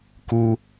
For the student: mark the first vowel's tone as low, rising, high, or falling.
high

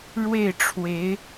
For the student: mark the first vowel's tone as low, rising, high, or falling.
falling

